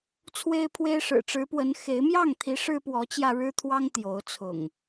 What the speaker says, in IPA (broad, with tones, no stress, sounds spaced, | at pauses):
t͡sʰ w e˦ ɪ̯ pʰ w e˦ ɪ̯ ʂ ɻ̩˨˩ ʈ͡ʂ ɻ̩˨˦ p w ə˨˦ n x e˨˦ ɪ̯ m j ɑ˥˨ ŋ t̪ʰ i˨˦ ʂ ɻ̩˦ p w ɔ˨˦ t͡ɕ j ä˧ ɻ ɻ̩˦ t̪ʰ w ɑ˦ ŋ t̪ j o˨˦ ʊ̯ t͡sʰ ʊ̰˨˩ ŋ